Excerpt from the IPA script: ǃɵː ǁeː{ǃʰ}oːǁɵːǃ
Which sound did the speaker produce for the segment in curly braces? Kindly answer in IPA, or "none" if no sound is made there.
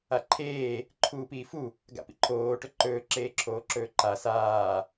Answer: ǁʰ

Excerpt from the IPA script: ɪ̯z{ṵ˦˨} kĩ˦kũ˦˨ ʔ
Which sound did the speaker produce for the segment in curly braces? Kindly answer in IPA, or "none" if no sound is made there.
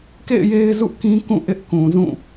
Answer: ṵ˦˨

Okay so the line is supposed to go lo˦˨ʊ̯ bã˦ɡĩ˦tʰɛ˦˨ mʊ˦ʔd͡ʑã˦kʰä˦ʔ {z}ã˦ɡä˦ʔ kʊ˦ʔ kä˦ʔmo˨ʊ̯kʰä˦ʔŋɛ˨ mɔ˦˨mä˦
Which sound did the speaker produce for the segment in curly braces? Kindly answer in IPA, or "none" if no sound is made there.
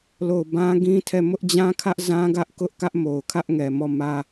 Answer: z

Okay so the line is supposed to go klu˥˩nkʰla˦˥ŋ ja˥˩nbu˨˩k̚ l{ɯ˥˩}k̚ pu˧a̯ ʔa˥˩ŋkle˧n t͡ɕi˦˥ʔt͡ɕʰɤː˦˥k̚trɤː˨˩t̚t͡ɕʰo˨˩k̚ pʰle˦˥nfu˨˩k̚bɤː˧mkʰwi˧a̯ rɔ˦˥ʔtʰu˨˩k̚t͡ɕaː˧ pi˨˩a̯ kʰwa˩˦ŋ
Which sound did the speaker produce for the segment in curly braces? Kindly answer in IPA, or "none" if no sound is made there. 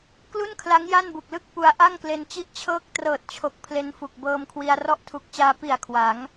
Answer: ɯ˦˥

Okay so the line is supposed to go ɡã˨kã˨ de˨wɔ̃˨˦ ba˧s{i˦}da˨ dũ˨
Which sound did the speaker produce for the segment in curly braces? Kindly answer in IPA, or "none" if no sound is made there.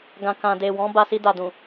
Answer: i˧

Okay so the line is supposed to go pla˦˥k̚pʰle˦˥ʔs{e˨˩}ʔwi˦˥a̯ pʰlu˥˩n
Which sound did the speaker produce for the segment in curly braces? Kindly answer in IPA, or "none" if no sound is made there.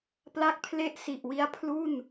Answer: i˨˩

